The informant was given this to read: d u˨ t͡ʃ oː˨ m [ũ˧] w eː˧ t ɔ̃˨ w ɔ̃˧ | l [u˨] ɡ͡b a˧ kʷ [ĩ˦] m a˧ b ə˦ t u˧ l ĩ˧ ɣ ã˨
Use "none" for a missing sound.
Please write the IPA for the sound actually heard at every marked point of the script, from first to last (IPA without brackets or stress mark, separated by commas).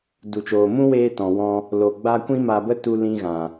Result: ũ˦, o˨, ĩ˦